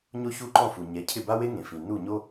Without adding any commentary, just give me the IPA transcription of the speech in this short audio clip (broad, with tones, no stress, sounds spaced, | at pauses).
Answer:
ɲ o˥ ç u˥˩ ǃ ɔ̃˥˩ f u˩ ɲ ɛ˩˥ cʰ ɪ˥˩ b a˥ w e˥ ŋ ẽ˩ f ĩ˩ n u˥˩ ɲ o˥